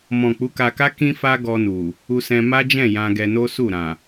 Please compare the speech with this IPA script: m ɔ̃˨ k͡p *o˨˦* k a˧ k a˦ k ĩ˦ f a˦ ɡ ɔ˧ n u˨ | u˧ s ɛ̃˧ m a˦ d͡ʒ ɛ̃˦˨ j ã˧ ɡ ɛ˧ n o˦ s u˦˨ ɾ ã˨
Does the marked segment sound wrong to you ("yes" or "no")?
yes